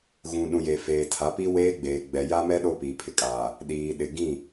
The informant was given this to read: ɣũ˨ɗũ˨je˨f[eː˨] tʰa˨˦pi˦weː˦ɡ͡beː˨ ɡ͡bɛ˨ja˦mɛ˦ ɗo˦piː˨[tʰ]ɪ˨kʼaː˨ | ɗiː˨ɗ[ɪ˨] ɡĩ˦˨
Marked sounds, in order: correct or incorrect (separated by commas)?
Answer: correct, incorrect, correct